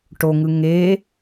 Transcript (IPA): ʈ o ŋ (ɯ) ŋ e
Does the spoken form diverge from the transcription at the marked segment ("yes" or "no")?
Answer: no